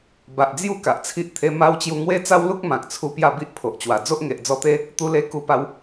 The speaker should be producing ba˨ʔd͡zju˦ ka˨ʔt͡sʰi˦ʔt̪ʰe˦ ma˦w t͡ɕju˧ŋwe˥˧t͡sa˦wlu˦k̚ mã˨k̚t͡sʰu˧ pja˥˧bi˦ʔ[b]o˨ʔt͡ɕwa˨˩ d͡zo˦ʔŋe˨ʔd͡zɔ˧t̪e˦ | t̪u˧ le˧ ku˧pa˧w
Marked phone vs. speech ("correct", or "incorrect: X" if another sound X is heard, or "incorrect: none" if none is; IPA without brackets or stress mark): incorrect: pʰ